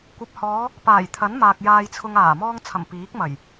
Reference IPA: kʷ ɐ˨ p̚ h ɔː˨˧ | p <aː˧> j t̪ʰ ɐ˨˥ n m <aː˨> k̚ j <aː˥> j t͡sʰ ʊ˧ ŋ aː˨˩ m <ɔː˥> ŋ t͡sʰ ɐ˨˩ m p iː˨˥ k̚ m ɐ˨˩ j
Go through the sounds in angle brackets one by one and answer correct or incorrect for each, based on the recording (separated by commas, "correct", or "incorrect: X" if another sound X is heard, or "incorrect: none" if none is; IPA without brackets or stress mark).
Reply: incorrect: aː˨˩, correct, incorrect: aː˧, incorrect: ɔː˧